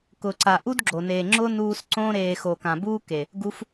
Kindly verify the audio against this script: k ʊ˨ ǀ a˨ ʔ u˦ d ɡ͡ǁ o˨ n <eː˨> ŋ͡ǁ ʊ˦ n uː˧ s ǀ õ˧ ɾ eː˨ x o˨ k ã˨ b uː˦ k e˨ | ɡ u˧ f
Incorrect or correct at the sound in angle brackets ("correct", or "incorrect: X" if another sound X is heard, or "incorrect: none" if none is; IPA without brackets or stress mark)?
correct